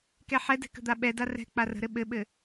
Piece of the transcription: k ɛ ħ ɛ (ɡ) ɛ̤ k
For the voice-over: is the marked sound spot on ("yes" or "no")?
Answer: no